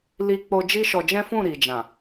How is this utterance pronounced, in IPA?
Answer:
l i˧ k͡p o˧ d͡ʒ i˦ ʃ ɔ˧ d͡ʒ ɛ̃˦ f ũ˦˨ ɾ i˨ d͡ʒ ã˨

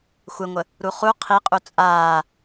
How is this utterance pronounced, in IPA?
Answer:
xʷ ɘ ŋʷ ə | ɾ u χ u qʰ i qʼ u t͡sʼ aː

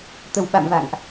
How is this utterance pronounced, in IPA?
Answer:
t̪ ə˨˩ w ɓ a̰˧˨ m v a̰˧˨ ŋ ʔ

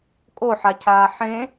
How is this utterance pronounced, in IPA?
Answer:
kʼ o ħ a cʰ aː ħ ẽ

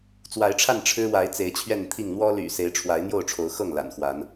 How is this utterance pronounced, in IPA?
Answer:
t͡s w a˨˦ ɪ̯ ʈ͡ʂʰ a˥˨ n ʈ͡ʂʰ ɻ̩˦ w a˨˦ ɪ̯ t͡s e˨˦ ɪ̯ t͡ɕʰ ɥ ɛ˥˨ n t̪ʰ i˥˨ ŋ n̪ w ɔ˦ l y̰˨˩ s e˨˦ ɪ̯ ʈ͡ʂʰ w a˨˦ ɪ̯ n̪ j o˥˨ ʊ̯ ʈ͡ʂʰ o˨˦ ʊ̯ x ɤ˥˨ ŋ l a̰˨˩ n x w a˨˦ n

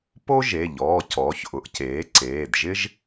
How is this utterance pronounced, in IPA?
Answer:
p o˥ ʒ e˩˧˩ ʎ ɔː˩˧˩ c ɔː˩˧ ç ʔ ʊ˩˧ ʔ c eː˩˥ ǀ eː˩˧˩ d ʒ ɪ˥ ʒ

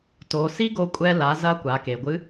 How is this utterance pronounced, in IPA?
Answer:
t o˩˧ s i˥ ɡ o˧ kʷʼ ɛ˧ l a˩˧ z ɐ˧ kʷ a˩˧ k e˩ ɡʷ ɨ˧˥

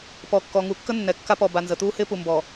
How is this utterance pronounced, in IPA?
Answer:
p ɔ˨ kː ɔ˨ ŋ u˨ kː ə˦ nː ɛ˨ kː a˦ p ɔ˨ b a˨ n z ə˨ t̪ uː˦ h ɪː˦ p u˨ m b ɔ˨

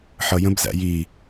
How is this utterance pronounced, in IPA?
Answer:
ħ ʌ j ə̃ b z æ̰ j i

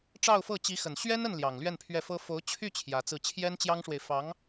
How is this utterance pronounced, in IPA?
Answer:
ʈ͡ʂ ɑ˥˧ ʊ̯ f ɤ˥˩ t͡ɕ i˧˥ x ə˨˩ n ɕ ɥ ɛ˥ n ə˥˩ n l j ɑ˨˩ ŋ l ɥ ɛ˥˧ n pʰ ɥ ɛ˥˩ f ɤ˥ f o˧˥ ʊ̯ t͡ɕʰ y˥˩ t͡ɕʰ j ä˧˥ t͡s ɹ̩˥˩ t͡ɕʰ j ɛ˥ n t͡ɕ j ɑ˥ ŋ ʂ w e˨ ɪ̯ f ɑ˧˥ ŋ

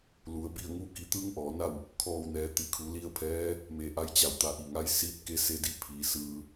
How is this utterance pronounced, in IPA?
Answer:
l u˩˧ ə̯ b i˥˨ ə̯ ŋ u˥˨ k i˧ t̪ ɯː˧˥ ŋ ʔ ɔː˩˧ n a˥˨ w | kʰ ɔː˧˩ w n ɛː˩˧ t̪ i˩˧ kʰ u˩˧ l i˧ ə̯ pʰ ɛː˧˥ | m e˧˩ ʔ a˧˥ j t͡ɕ a˧˩ w t̪ a˧˩ ʔ i˧˩ ŋ a˧˥ j s iː˧˥ t̚ k e˧˥ s e˧˥ d i˥˨ pʰ iː˩˧ s ɯː˧

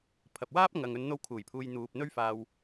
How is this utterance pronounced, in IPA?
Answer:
pʰ ɐ˨ p̚ w aː˥ p̚ ŋ ɐ˨ ŋ ɵ˨˧ n n̪ o˧ w kʰ uː˨˩ j pʰ uː˨ j n̪ uː˨ p̚ n̪ ɵ˥ ɥ f aː˧ w

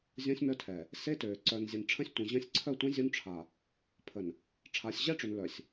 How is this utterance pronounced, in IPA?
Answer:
zʲ õ˦ sʲ m œ˦ tʰ ɛ˨ | s e˦ t øː˨ ǀ œ˨ n zʲ e˨ n ʈ͡ʂʰ ə̃˦ sʲ tʷ ĩ˨ ʑ ə̃˦ sʲ ǀʰ œ˦˨ tʷ ĩ˦ zʲ u˦ n ʈ͡ʂʰ a˨ | pʰ ə˨ n | ʈ͡ʂʰ a˨ sʲ ʑ ɛ˦ ʈ͡ʂ ø˨ n l œ˨ sʲ

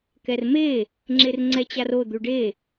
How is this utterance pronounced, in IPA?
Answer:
k ɛ r m e | ŋ͡ǁ e r ŋ͡ǀ ɛ t͡ɕ a r o d̪ u ɖ e

